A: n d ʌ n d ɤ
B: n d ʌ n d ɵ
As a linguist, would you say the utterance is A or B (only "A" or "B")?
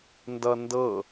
A